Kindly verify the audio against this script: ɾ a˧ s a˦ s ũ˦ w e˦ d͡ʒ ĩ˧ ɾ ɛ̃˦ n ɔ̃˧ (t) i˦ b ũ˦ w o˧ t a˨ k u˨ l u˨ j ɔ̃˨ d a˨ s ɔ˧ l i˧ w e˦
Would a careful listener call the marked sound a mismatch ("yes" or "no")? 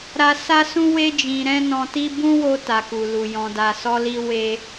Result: no